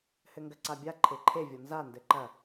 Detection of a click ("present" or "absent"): present